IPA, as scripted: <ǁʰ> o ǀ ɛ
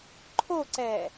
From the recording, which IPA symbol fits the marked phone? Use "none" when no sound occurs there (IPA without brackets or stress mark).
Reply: ǃʰ